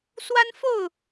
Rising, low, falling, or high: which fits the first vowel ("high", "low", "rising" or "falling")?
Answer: high